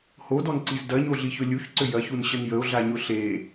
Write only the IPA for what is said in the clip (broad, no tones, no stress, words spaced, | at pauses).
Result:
hodɔnǀiz dɐɲoɮiçʊ lʲuçǀʏ jɐçunɕən jəo̯ɮaɲʊ ɬe